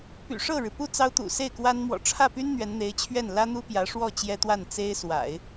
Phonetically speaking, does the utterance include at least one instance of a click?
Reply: no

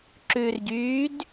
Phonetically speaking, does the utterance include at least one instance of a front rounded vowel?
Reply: yes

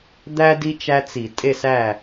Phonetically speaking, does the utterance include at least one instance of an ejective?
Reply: yes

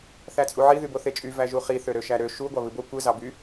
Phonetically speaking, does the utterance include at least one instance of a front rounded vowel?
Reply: yes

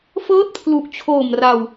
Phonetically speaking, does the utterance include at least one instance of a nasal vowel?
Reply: no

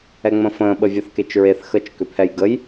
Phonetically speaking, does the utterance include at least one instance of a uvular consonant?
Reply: no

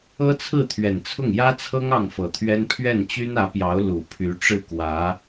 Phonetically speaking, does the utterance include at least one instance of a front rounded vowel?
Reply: yes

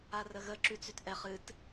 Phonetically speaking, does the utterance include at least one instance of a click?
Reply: yes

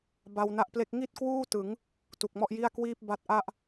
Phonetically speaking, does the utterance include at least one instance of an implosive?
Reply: no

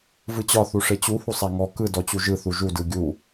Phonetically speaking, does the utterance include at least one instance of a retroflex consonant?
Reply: yes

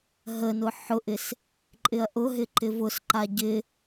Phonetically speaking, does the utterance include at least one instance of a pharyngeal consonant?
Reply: yes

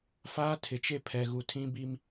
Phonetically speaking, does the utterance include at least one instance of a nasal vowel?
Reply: yes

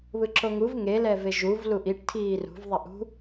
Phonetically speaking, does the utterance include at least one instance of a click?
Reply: yes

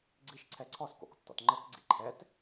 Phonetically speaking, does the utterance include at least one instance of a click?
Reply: yes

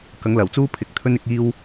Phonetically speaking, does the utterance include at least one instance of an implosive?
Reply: no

